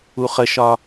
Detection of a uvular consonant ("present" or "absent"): present